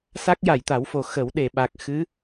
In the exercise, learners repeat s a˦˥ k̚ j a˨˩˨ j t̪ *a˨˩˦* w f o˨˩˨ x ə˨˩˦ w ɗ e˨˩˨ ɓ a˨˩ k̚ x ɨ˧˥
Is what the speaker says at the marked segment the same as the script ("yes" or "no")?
yes